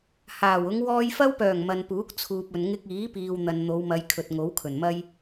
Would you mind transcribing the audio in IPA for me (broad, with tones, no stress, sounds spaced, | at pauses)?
h aː˨˩ w ʊ˨˧ ŋ w ɔː˨ j f ɐ˧ w p œː˨˩ ŋ m ɐ˨ n p uː˨˥ k̚ t͡sʰ uː˨ p̚ ɵ˨ n ŋ ɪ˧ k̚ iː˨˥ p iː˨ w n̪ ɐ˨ n n̪ o˨˧ w m ɐ˨˧ j kʰ ɵ˨ t̚ ŋ o˨˥ w kʰ ɵ˨˩ n m ɐ˥ j